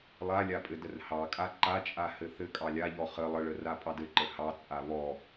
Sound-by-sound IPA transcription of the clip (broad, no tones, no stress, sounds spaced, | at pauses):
lˠ a lʲ a pʼ ɘ d ə r h ɑ kʼ a ǃ a t͡ʃʼ a h ɘ θ ɘ kʼ ɑ lʲ a ʎ ɔ χ ə lˠ ə ɭ ə r a pʼ ɑ d ɘ ǃ ə h ɑ t͡sʼ a β ɔ